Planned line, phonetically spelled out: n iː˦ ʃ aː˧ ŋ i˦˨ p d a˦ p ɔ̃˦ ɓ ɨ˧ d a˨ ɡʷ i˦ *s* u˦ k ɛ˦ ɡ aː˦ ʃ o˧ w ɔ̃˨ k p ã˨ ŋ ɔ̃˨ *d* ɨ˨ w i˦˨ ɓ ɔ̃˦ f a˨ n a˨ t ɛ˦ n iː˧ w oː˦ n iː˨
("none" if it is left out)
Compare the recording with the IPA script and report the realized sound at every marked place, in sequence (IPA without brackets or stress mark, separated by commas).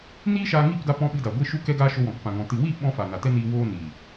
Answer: ʃ, t